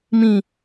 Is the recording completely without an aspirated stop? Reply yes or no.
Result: yes